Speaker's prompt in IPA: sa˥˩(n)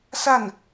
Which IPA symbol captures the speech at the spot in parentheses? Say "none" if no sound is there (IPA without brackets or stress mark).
n